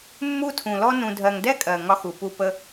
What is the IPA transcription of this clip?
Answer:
mː u˦ tʰ ũ˨ l ɔ˦ n ũ˧ dʱ ɜ˧ ŋ d ɛ˦ kʼ ɜ˨ ŋ ɒ˧ x u˨ p u˧ p ə˧

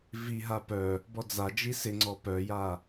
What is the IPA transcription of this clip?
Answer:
v i ɦ a p œ | b ɔ d͡z a d͡ʒ i s ɪ ŋ͡ǀ ɔ p œ j a

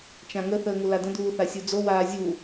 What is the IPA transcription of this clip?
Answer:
t͡ʃ ã ŋ ə θ əː ŋ u l a d ə̃ d uː θ a sʲ u d͡z o w aː zʲ u

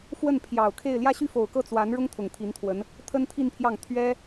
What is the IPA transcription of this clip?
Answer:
f w ə˥˩ n pʰ j ɑ˨˩ ʊ̯ kʰ e˥˧ ɪ̯ l j ä˥˧ ɕ y˥˩ f o˨˩ ʊ̯ k ɤ˥˩ t͡s w a˧˥ n ɻ ʊ˥ ŋ t̪ʰ ʊ˨˩ ŋ t̪ʰ i˧˥ n t̪ʰ w ə˧˥ n | t̪ʰ ə˥ n t̪ʰ i˥˧ n pʰ j ɑ˥˩ ŋ t̪ʰ ɥ ɛ˥

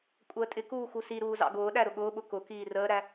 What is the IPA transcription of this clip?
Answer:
kʷʼ əː tʼ ɪ k uː x u s i ɾ uː z ɑ̰ ɡ ʊː ɗ æ ɾ ʊ ɠ ʊː ɓ ʊ k ʊ k iː r əː ɾ æ

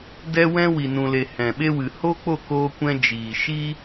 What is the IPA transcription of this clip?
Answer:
d ɛ˦ w ɛ̃˦ w i˨ n ũ˨ l e˨ h ɛ̃˨ ɓ e˧ w ɨ˨ h o˦ k͡p o˦˨ k oː˧ kʷ ɛ̃˧ d͡ʒ iː˨ ʃ iː˦

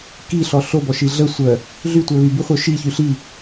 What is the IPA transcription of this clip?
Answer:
k i ɬ ɔ ɬ o b ɔ ʃ i ɮ ə sʷ œ | ɮ y tʷ ɛ β y b y χʷ œ ʃ i ç y ɬ i

